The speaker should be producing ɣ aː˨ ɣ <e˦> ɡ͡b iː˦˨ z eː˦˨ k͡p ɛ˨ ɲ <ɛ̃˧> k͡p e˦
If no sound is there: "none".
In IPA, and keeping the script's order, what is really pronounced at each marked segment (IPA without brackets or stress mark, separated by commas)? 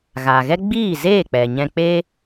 ɛ˦, ɛ̃˧